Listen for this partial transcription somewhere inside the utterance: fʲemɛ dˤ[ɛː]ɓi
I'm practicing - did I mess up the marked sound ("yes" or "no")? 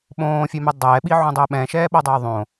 no